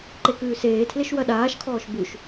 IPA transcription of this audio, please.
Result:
ǃ e k ʉː s eː tʰ l e ʃ w ɐ ɗ aː ʃ kʰ ɔː ʃ b ʉ ʃ

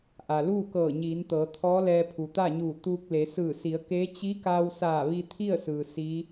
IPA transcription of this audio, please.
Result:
ʔ a˩ l uː˥˨ k ɤː˧˩ ɲ iː˩˧ n t̪ ɤː˩˧ t̪ʰ ɔː˧˥ l ɛː˧ pʰ u˩ t̪ a˥˨ ɲ uː˧˩ t̪ uː˧ k̚ l e˩˧ s ɯː˧˩ s i˩˧ ə̯ k eː˧˥ t͡ɕ i˧˥ k aː˧ w s aː˧˩ ʋ i˧ t̪ʰ i˥˨ ə̯ s ɯː˩ s i˧˥

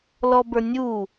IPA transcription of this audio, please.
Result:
l ɔ b ə˞ nʲ u

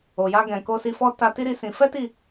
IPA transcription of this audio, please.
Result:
o˨ j a˧ ɡ ɛ̃˨ k o˧ s i˧ f ɔ˦ t a˧ t i˦ ɾ i˦ s ĩ˧ f ɛ˦ t i˦˨

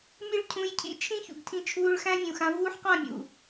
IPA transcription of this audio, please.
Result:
mʲ ɨ˦ ɭ cʰ ũ˧ j cʰ ḭ˦ t͡ʃʰ ĩ˦ ç ṵ˨ ɡ tʰ ĩ˧ t͡ʃʰ uː˧ ɭ x æ̃˦ vʲ ũ˨ x ã˧ v uː˦ ħ q ã˦˨ mʲ ṵ˨

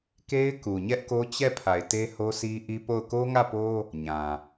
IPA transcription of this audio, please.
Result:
k e˦ ɪ̯ k u˨ ɲ ɛ˦ ʔ k o˦ t͡ɕ ɛ˦˨ pʰ a˨ ɪ̯ t e˦ h o˦ s i˦ ʔ i˦ p o˦˨ ʊ̯ k o˦ ŋ ä˦˨ p o˦ | ɲ ã˨

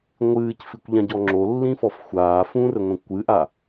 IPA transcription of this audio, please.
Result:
ŋʷ ɨː c f i kʷ ʎ ã ɟ ɔ ŋ͡ǁ o lː ĩ f ɔ f xʷ aː f ũ r ɘ ŋʷ ɛ̃ kʷ ɨ ʔ a

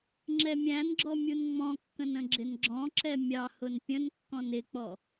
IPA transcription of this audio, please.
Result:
ŋ͡ǁ ɛ mʲ æ̃ n ɡ͡ǁ ɔ mʲ u n ŋ͡m ɔ̃ kː ə̃ n ə̃ ɡ͡ǁ ɪ n ɡ͡ǁ ɔ̃ ǁ ɛ mʲ ɑ h ʊ n pʲ ə̃ n kː ɔ̃ n ɪ k͡p ɔ

